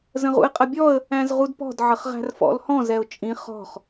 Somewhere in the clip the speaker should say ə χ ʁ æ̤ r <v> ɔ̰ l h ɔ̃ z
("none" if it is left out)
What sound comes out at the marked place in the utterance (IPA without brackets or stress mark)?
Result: f